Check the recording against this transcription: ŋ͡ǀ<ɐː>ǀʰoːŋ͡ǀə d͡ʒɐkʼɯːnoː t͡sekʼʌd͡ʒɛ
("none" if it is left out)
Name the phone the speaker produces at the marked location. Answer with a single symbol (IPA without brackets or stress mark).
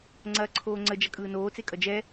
ɐː